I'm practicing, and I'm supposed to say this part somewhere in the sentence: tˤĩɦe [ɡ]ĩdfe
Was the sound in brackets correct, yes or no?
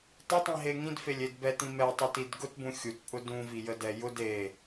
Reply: no